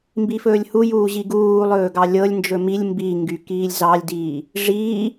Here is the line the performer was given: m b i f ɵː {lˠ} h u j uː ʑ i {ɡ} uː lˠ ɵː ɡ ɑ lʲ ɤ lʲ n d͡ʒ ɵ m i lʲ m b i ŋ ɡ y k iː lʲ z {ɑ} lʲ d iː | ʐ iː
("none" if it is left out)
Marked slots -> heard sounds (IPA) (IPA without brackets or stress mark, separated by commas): lʲ, ɡ, ɑ